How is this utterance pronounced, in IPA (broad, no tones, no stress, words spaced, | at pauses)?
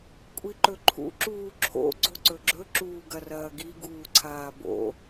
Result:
kʷʼiǃɵǃʰṵ ǁuːǁʰo̰ ɡ͡ǀoǀɵɡ͡ǁɵ ǁuːɡɐrɐːɡi ɡuːǀʰaːbo̰